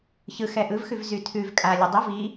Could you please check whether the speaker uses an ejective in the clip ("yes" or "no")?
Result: yes